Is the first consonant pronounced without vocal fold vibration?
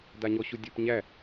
no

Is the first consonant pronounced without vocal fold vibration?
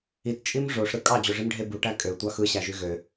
yes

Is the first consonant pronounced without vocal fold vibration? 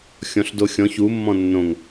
yes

